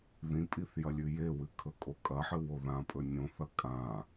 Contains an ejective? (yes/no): yes